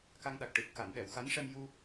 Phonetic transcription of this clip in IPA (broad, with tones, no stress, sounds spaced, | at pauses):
k a˧ ŋ ɗ a˨˩ k̚ ʈ ɨ˨˩ t̚ k a˨˩˨ n ɗ ɛ˨˩˨ w x a˧˥ n ʂ ɛ˧ m j u˧